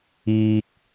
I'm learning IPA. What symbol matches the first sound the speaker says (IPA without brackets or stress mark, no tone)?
iː